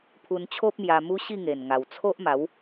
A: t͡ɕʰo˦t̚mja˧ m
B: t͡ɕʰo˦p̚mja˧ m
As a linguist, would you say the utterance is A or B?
B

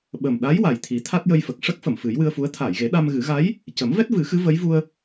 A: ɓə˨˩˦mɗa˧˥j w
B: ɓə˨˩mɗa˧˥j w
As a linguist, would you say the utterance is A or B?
B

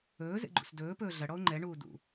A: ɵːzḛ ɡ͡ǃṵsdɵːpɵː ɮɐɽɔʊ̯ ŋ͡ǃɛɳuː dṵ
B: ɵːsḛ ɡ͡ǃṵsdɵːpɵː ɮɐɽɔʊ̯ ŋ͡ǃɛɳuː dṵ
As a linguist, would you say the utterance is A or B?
A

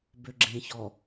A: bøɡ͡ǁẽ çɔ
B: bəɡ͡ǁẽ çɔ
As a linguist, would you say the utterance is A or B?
A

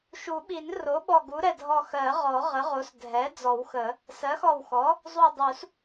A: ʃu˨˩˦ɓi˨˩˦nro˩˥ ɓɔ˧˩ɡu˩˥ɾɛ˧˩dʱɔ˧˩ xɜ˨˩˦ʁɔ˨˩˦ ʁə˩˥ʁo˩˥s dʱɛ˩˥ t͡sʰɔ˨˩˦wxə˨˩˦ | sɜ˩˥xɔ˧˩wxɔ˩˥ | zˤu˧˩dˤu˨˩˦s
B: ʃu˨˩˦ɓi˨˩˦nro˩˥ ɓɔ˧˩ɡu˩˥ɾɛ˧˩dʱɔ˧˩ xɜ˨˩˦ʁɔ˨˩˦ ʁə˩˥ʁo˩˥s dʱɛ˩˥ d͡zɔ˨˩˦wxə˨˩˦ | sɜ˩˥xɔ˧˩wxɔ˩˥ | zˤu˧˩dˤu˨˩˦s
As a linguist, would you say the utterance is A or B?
B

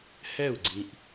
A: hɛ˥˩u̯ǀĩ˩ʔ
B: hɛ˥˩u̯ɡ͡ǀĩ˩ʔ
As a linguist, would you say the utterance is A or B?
B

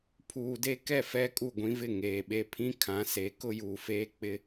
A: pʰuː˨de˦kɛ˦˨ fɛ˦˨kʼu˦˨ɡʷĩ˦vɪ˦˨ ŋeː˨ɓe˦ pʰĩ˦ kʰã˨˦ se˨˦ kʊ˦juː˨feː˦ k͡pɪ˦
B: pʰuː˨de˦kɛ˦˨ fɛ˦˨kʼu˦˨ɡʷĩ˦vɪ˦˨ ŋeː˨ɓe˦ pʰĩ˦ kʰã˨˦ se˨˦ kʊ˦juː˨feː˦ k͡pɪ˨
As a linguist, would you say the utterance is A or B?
A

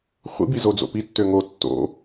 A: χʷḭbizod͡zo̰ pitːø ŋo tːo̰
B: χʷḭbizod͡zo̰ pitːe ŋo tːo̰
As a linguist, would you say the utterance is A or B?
A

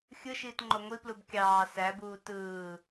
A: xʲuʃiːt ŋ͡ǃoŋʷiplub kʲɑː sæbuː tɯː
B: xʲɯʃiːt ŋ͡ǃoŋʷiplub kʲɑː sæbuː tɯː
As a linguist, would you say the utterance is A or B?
B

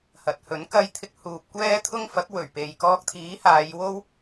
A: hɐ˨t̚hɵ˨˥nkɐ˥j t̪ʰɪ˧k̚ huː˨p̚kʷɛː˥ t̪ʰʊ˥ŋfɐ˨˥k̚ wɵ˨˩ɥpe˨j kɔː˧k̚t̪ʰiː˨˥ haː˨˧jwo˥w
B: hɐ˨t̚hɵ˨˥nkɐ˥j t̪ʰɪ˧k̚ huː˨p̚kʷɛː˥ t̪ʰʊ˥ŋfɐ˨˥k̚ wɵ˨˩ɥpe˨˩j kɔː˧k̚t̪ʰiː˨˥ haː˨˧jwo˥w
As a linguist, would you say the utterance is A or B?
A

